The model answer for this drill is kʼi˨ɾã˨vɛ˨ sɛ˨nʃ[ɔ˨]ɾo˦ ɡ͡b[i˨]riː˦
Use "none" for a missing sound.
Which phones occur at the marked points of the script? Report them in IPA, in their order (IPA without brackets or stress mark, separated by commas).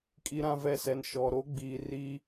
ɔ˨, iː˨